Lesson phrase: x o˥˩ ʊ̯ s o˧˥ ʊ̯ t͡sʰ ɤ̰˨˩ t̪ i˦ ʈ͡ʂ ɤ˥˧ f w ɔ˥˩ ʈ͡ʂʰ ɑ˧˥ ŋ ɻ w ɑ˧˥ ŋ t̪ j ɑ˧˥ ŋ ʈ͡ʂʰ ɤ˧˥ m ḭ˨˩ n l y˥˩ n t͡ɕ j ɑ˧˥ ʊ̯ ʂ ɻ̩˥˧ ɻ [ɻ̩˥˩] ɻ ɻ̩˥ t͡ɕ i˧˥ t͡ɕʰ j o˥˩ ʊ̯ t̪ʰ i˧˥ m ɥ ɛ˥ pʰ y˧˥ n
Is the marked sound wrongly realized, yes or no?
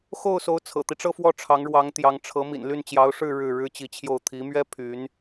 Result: no